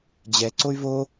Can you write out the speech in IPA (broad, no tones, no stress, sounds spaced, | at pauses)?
d͡ʑ ɛ ǀ o y̯ v o